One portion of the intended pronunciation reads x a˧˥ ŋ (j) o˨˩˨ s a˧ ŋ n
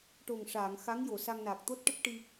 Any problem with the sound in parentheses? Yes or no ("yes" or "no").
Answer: no